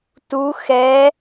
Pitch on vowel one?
rising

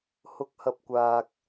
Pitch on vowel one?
rising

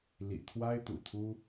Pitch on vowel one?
low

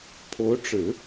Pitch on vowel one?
rising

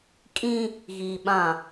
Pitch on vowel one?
high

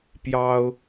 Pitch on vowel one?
high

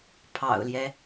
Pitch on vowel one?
low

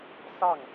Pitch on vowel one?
falling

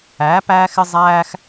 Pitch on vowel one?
rising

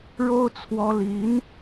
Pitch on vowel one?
high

